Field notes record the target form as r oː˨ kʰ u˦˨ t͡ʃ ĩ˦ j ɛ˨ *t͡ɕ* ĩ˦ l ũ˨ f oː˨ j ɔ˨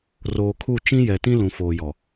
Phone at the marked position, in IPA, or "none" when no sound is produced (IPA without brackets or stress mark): t